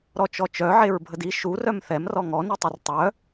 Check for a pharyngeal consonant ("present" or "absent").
present